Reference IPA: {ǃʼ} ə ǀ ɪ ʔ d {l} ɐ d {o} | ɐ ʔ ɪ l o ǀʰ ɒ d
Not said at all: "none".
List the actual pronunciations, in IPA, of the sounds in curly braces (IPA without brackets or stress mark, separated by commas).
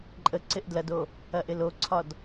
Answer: ǃʼ, l, o